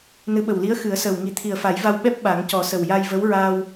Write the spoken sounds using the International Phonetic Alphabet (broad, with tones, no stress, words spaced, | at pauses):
nɨ˧˥ɓə˨˩wli˧˥ə̯ xɨ˨˩˦ə̯səː˨˩wŋi˨˩˦ t̪ʰi˨˩ə̯fa˨˩˦jva˧w ɓɛ˦˥p̚ ɓa˨˩˦ŋcɔ˨˩˦sə˨˩w ja˧jvə˧˥wɹaː˧w